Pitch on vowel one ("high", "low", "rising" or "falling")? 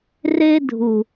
high